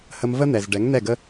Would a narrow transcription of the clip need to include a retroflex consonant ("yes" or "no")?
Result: yes